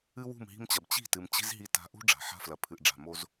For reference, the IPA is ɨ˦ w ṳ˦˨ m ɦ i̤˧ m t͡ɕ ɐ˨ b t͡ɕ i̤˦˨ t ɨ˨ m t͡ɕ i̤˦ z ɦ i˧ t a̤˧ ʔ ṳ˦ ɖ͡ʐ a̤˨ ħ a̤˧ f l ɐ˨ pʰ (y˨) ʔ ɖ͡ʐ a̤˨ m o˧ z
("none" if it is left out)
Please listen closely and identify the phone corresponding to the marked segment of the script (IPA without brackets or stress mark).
ɨ˨